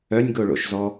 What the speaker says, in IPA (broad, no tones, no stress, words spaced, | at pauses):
œnʲɡoɭo̰ʃzɔ